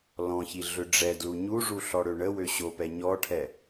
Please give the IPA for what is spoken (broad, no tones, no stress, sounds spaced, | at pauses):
l ɔ̃ ç i ɮ ʏ ɖ͡ʐ ɛ d l u ɲ u ʐ u ɬ ɔ ɽ ø ɳ ə w ø ɕ o p ɛ ɲ ɔ ʈʰ ɛ